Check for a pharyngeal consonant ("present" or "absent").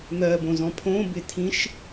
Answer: absent